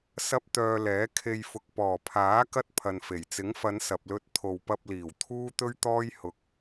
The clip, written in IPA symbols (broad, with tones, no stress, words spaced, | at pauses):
sɐ˥p̚t̪œː˧lɛː˨˥ kʰe˧jfʊ˨k̚ pɔː˨˩pʰaː˨˥ kɐ˥t̚pʰɐ˨nfe˨˩j t͡sɪ˨˥ŋfɐ˨˧n sɐ˨p̚lɵ˧t̚ t̪ʰo˨wpɐ˧p̚liː˨˩w t̪ʰuː˥t̪ɵ˥ɥt̪ɔː˥j hʊ˨k̚